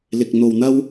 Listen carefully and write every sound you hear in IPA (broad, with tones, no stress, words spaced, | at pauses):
lɪ˧k̚n̪o˧wn̪ɐ˥w